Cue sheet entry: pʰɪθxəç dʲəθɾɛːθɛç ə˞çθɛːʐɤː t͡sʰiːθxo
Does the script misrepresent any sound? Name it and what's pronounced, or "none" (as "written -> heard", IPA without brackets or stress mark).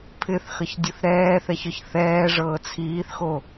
none